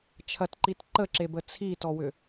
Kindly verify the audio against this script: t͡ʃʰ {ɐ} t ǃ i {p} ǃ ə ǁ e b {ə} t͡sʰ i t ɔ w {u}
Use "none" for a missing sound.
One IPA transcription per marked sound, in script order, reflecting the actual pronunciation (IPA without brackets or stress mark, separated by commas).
ɐ, t, ə, ʏ